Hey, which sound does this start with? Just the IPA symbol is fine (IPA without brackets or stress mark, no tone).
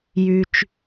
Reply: j